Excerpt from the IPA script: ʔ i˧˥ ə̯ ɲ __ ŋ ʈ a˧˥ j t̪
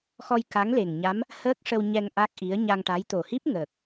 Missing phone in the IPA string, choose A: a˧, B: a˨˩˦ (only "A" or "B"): A